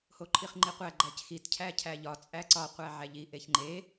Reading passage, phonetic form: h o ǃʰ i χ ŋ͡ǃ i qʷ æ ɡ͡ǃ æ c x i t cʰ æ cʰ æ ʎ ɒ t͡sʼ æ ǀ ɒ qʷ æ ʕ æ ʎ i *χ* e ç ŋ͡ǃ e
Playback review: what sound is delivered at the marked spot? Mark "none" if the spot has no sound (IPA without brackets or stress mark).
ʔ